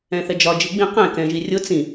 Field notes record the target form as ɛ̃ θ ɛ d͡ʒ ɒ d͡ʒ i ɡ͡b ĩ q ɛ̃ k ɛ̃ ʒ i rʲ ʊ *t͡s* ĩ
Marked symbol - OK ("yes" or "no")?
yes